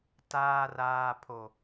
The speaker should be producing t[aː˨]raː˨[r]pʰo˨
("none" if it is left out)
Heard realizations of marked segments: aː˨, none

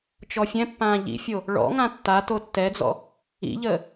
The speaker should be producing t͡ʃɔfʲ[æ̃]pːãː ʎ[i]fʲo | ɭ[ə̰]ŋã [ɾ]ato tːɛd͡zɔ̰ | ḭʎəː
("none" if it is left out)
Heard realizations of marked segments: ɛ̃, ḭ, ɔ̰, tː

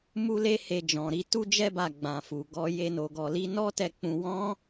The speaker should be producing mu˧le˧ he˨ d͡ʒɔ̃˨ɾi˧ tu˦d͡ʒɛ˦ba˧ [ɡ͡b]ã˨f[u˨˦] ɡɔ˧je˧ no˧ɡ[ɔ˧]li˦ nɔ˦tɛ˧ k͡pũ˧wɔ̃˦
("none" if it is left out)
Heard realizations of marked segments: ɡ͡b, u˨, ɔ˧

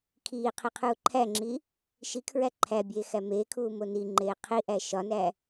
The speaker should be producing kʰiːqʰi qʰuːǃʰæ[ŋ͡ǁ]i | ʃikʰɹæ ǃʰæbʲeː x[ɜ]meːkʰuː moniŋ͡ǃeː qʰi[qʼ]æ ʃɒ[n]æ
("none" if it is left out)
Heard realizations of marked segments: ŋ͡ǁ, æ, ʔ, n

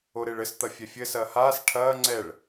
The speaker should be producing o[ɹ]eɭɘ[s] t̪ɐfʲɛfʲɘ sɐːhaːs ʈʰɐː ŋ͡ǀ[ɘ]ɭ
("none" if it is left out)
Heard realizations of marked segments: ɾ, s, ɛ

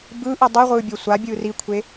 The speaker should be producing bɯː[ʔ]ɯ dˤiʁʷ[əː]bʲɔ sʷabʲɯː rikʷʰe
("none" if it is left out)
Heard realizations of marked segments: ʔ, ɯː

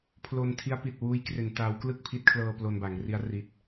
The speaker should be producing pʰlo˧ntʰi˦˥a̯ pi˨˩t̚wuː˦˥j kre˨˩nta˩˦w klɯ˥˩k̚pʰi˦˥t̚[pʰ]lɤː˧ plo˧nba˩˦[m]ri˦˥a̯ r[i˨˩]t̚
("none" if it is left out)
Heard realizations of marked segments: kʰ, ŋ, i˨˩

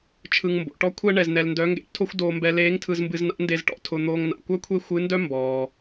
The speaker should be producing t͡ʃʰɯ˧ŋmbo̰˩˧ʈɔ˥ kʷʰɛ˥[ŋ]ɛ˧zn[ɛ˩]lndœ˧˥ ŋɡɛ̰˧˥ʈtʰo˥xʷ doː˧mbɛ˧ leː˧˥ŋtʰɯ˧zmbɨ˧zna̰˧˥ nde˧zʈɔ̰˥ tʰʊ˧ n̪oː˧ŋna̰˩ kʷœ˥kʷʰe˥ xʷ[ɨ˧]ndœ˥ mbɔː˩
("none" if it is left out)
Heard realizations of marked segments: ɳ, ɛ˧, ɨ˧˥

